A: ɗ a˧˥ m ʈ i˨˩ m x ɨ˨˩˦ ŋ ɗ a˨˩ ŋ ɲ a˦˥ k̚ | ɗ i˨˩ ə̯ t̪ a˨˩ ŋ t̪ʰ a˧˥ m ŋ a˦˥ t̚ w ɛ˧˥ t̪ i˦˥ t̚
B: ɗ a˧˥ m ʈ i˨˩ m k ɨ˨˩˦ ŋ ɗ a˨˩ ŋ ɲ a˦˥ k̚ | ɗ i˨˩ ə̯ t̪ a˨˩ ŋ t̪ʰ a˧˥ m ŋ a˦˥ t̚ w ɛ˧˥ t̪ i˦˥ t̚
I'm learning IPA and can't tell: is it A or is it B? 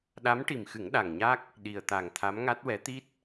A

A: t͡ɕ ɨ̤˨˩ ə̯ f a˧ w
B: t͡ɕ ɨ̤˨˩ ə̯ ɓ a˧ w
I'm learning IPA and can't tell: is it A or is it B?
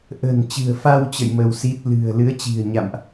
A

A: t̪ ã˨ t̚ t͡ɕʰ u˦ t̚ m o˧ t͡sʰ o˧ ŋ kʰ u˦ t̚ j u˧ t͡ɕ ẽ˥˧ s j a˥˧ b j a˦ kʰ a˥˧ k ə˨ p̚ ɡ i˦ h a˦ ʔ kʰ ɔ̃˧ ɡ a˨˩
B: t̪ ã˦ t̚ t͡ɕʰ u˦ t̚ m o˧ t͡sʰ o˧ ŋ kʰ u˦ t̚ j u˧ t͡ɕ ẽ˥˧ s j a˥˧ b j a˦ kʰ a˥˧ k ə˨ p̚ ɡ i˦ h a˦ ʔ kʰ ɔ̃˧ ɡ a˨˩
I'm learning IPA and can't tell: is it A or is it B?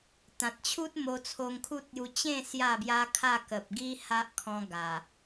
A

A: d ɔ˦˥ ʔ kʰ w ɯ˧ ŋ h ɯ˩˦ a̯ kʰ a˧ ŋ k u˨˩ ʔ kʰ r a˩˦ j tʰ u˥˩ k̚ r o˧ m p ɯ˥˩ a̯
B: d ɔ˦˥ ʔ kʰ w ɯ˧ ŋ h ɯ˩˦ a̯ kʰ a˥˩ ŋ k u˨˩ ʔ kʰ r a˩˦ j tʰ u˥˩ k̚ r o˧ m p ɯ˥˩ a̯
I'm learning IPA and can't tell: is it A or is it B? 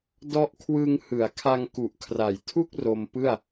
A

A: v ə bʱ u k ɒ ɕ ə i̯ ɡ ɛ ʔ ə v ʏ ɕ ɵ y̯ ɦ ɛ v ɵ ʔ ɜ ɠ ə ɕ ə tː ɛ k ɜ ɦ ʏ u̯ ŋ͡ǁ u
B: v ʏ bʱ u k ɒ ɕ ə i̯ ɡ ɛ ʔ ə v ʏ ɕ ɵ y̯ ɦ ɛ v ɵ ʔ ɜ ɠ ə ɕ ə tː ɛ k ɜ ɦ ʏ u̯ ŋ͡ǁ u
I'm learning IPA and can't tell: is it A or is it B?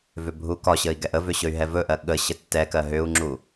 B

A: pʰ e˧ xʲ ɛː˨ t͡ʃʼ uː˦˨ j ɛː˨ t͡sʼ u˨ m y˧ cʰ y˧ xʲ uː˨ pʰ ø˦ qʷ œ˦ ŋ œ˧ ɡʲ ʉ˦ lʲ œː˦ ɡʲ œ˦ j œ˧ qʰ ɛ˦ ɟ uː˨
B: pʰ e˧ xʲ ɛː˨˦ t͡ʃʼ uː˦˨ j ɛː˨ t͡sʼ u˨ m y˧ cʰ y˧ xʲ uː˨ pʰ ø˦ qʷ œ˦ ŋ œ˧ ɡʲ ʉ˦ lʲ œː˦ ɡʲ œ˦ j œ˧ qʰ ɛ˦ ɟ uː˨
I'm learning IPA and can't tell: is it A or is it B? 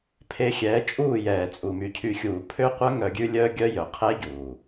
B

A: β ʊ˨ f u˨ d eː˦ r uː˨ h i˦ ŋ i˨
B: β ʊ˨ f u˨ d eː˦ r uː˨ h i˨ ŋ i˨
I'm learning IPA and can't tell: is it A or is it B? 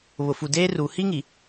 A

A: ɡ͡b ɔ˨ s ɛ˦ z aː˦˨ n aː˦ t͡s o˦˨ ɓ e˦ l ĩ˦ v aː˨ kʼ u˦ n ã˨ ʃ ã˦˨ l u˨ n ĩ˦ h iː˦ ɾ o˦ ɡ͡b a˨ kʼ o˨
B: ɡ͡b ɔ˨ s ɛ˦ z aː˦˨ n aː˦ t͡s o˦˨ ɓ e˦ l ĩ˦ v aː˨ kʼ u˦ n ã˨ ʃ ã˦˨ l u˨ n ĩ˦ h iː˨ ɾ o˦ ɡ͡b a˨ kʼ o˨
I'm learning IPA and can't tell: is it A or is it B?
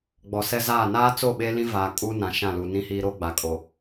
A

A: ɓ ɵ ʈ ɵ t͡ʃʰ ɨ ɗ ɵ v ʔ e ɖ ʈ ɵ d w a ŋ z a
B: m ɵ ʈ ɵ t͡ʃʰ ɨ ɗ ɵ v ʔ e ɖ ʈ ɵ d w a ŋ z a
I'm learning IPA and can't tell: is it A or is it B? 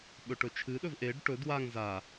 A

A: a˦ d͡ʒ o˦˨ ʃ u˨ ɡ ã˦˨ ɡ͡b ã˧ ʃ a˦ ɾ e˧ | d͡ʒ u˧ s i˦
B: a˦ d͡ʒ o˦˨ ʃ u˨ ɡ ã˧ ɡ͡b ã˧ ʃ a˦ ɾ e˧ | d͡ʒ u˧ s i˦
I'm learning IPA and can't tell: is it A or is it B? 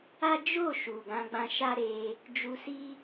B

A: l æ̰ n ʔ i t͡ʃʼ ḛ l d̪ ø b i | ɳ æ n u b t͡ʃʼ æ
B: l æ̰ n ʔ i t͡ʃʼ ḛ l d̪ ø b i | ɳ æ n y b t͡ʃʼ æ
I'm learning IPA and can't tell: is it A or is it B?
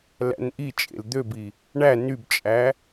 B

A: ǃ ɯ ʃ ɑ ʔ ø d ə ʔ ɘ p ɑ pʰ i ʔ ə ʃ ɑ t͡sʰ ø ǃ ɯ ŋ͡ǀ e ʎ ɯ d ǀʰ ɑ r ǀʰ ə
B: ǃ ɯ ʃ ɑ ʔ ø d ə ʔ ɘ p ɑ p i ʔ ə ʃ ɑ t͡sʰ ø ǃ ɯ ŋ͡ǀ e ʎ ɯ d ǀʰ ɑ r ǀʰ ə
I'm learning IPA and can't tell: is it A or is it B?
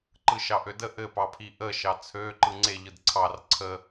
A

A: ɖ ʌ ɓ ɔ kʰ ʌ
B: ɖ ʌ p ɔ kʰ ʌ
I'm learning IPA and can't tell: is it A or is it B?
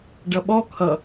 A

